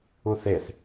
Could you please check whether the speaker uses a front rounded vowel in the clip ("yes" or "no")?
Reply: no